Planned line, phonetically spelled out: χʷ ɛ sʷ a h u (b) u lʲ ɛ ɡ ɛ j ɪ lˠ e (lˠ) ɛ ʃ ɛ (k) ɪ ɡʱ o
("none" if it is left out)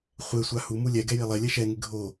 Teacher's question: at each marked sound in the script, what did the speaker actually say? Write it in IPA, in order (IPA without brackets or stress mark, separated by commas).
m, lʲ, ŋ